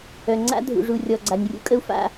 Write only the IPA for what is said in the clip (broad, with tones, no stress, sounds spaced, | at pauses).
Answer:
œ˨ ŋ͡ǀ a̰˦ dʱ ṵ˨ ʐ u˨ rʲ ɔ˨ ɡ͡ǀ a˨ nʲ rʲ ṵ˦ kʼ ə˦ u̯ f a̰˦